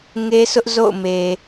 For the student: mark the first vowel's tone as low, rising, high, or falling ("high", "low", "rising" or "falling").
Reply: high